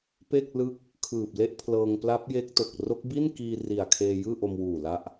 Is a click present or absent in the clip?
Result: absent